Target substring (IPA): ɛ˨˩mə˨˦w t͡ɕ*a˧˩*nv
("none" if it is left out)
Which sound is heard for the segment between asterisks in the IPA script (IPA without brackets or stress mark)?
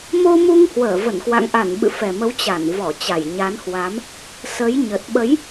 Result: a˧˩